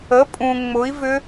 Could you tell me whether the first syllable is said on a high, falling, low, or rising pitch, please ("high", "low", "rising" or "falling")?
rising